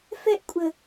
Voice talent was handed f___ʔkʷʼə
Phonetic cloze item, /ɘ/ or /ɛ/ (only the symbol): ɛ